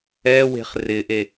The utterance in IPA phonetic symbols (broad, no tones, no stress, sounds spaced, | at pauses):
ɛ w e̤ χ r ɪ ʔ e